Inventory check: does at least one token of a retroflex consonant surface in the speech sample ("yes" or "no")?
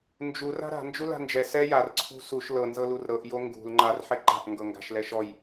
no